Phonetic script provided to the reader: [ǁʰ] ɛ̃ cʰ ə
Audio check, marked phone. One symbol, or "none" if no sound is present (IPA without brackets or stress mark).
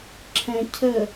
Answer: ǁʰ